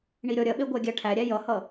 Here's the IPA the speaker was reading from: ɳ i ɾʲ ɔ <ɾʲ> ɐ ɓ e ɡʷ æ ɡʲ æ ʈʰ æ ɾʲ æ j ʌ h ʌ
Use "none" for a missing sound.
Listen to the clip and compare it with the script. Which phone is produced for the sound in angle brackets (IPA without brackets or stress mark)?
ɾʲ